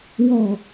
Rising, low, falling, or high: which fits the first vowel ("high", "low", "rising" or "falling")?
falling